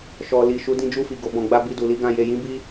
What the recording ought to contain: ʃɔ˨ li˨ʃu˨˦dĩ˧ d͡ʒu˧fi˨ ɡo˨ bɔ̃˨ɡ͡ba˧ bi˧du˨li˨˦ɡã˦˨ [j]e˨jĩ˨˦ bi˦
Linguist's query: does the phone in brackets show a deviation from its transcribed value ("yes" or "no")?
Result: no